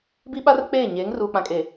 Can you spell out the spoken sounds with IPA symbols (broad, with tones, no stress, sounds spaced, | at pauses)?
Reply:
b i˦ ɓ a˦ r k͡p eː˦˨ ɲ eː˨˦ ŋ r uː˨ k͡p ã˨ kʼ e˨